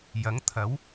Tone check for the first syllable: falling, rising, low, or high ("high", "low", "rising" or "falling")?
rising